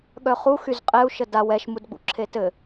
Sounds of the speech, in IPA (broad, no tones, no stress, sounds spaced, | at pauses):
ɠ œ χ u x y z qʼ ɛ u̯ ʃ ə d a w ɛ ʃ m u d ɡ͡b ṵ ǁʰ e t ɘ